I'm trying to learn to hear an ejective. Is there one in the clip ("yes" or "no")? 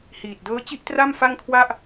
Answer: no